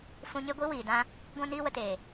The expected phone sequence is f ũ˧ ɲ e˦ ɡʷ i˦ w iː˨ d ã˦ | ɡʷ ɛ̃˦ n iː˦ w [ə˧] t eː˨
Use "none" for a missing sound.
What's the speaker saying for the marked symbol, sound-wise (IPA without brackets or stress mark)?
ə˧